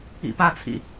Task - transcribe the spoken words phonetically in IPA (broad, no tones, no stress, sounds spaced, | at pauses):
ḭ p a t͡sʰ ḭ